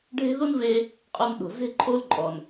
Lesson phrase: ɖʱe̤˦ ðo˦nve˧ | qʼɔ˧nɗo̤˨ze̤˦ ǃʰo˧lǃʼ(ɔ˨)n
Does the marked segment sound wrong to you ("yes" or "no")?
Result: no